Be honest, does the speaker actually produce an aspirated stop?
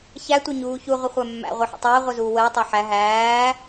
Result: no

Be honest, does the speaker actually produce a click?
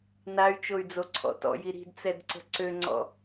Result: yes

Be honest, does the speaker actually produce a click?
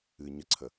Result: yes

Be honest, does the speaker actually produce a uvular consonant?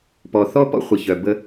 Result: yes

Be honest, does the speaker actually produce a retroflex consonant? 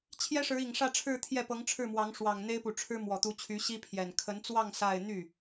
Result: yes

